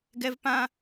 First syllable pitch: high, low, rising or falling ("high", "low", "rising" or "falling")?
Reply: high